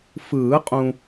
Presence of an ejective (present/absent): present